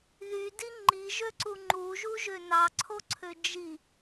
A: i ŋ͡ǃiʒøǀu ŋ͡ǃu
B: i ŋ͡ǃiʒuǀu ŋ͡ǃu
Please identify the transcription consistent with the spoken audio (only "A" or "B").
A